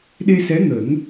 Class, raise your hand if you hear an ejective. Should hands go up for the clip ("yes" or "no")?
no